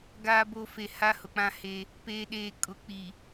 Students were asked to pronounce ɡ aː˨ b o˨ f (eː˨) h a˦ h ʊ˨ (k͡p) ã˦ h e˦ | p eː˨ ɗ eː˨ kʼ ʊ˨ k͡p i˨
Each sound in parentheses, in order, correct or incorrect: incorrect, correct

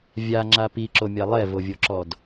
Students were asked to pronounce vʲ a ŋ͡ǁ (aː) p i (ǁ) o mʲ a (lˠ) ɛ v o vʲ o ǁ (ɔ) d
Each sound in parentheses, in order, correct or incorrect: incorrect, correct, correct, correct

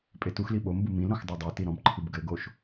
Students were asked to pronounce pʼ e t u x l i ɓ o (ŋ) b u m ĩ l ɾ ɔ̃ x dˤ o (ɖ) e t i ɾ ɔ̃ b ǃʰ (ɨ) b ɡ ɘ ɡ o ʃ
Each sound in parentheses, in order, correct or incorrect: incorrect, incorrect, correct

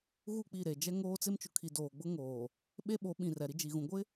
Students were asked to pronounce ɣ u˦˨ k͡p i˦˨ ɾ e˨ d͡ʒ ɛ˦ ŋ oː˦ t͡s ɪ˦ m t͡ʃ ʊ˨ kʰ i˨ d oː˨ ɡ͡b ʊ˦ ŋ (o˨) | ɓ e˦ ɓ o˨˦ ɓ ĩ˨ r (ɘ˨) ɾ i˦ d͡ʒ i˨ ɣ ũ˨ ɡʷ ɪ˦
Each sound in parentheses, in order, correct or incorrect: incorrect, incorrect

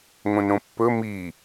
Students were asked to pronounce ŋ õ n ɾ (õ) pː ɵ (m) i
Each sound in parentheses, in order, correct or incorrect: correct, correct

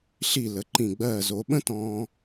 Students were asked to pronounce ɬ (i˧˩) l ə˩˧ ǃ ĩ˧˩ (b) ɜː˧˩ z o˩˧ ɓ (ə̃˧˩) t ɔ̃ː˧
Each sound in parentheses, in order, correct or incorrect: correct, incorrect, incorrect

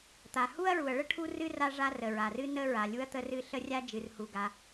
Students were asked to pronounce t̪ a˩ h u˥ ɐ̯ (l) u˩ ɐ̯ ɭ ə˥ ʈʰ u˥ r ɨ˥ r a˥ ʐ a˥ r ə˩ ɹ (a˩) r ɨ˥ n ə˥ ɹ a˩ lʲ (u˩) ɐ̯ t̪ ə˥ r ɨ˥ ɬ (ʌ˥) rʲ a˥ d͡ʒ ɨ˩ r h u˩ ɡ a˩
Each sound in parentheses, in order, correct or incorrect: incorrect, correct, incorrect, incorrect

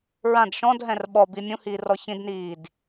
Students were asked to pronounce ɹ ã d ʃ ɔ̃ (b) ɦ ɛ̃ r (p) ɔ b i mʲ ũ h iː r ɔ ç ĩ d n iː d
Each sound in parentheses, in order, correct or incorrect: incorrect, incorrect

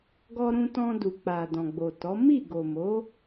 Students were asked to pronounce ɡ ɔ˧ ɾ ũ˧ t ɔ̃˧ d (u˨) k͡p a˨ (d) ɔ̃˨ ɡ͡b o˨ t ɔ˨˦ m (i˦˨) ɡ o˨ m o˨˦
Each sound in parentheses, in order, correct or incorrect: correct, correct, correct

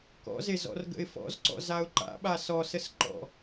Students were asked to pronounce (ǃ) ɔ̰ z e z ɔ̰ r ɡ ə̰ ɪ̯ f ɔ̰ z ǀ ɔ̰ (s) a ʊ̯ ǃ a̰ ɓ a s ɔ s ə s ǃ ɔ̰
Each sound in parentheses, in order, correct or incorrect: incorrect, incorrect

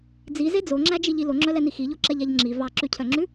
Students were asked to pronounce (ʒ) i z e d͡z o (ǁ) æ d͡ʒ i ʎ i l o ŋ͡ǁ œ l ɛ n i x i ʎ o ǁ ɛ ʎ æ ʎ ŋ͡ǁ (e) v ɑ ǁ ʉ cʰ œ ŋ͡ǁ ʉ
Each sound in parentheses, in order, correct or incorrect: incorrect, incorrect, incorrect

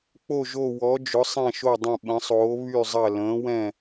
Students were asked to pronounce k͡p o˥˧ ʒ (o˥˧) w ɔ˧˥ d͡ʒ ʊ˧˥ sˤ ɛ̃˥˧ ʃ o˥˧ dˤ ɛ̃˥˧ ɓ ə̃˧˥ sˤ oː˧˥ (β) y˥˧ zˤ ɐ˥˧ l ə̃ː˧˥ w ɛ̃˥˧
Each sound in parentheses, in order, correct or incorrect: correct, correct

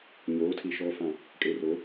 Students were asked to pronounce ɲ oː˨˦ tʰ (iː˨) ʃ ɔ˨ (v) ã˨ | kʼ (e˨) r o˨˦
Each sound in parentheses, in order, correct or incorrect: incorrect, incorrect, correct

